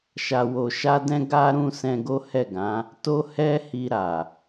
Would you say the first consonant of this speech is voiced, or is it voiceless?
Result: voiceless